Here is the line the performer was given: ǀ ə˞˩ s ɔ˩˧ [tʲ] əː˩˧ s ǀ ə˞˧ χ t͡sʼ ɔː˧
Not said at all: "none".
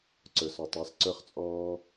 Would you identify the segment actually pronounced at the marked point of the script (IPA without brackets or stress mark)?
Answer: tˤ